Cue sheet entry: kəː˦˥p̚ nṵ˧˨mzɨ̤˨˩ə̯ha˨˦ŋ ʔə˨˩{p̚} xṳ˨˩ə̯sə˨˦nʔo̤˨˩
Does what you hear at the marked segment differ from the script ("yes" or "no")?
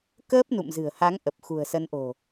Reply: no